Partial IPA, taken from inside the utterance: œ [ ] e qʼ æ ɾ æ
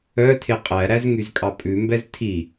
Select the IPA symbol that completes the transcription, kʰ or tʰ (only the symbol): tʰ